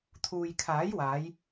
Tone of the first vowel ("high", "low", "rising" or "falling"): low